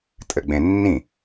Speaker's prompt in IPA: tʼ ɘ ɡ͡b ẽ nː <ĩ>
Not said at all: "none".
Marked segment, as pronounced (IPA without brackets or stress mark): ĩ